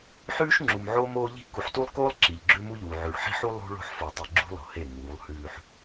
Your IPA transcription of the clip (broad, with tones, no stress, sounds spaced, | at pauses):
ħ ʉː˦ ʃ ŋ͡ǁ u˨ m ʕ oː˦ m oː˦ ʎ i̤˦ k u˨ ħ t u˦ lˠ k oː˦ lˠ ǁ i˨ ʎ ɡ͡ǁ ʉ˦ m u˦ ʎ uː˨ ʕ ʉ˨ ɭ ħ i̤˦ ħ u˦ lˠ ṳ˦ ɭ o̤˦ ħ f o˨ tˤ i˨ ɡ͡ǁ ṳ˦ lˠ o̤˨ h e˦˨ ŋ uː˨˦ lˠ h ʉː˦ ħ